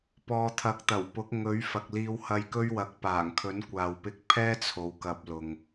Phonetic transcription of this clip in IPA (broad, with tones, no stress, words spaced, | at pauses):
pɔː˨ t̪ʰɐ˨˥k̚t̪ɐ˨˩wpʊ˨˥k̚ ŋɵ˨˥ɥfɐ˨k̚ liː˧whɐ˧jkɵ˥ɥwɐ˨˥k̚ paː˨˩ŋkʰɵ˨˥nkʷaː˨wpɪ˧k̚ pʰɛː˥ t͡sʰo˨˧wkɐ˧p̚lʊ˨ŋ